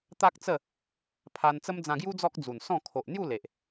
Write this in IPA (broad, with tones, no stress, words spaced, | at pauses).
t̪a˦k̚t͡sə˥˧ | pʰa˧nt͡sə˦m d͡zã˧ɡju˦ d͡zɔ˦k̚d͡zu˨˩nsɔ̃˥˧ kʰo˨ʔn̪ju˥˧ le˨ʔ